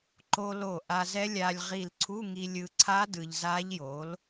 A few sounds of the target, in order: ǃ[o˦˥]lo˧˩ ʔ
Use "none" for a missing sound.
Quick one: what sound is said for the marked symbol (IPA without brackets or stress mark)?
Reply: o˧